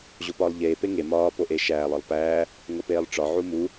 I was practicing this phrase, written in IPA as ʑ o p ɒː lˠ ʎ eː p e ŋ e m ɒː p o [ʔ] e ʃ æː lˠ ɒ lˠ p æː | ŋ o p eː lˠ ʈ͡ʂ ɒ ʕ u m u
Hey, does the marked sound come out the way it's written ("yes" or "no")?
yes